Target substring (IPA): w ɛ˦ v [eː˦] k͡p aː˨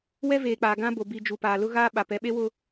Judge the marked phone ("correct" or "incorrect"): incorrect